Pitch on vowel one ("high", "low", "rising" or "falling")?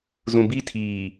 low